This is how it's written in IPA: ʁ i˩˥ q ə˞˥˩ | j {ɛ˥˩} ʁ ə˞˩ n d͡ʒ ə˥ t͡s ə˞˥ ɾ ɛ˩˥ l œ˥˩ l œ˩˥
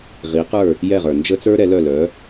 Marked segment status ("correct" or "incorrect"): correct